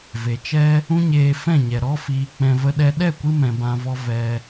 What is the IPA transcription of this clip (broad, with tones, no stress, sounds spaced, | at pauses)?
v e˨ t͡ʃ ɛ˦ | ũ˦ ɲ eː˧ f ɛ̃˦˨ ɲ ɛ˨ ɾ ɔ˧ f iː˨ k͡p ɛ̃˧ v ə˦ ɗ ɛ˦ ɗ ɛ˦˨ kʷ ɨ˧ m ɛ̃˨ b ã˧ v ɔ˦ v ɛ˧